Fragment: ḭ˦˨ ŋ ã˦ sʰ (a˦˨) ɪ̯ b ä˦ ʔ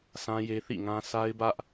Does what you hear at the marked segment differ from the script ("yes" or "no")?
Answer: yes